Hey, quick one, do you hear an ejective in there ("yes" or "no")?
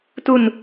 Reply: no